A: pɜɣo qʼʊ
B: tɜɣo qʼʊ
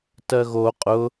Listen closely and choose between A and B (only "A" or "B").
B